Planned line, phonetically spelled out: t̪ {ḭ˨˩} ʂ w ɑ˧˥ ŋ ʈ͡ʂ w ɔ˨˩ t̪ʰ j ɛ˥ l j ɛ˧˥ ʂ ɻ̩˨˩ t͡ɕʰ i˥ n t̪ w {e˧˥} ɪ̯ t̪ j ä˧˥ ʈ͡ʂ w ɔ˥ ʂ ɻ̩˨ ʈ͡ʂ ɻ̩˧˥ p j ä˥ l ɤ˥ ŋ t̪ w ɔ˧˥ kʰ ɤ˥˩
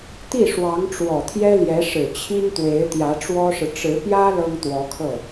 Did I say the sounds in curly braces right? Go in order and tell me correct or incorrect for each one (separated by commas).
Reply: incorrect, correct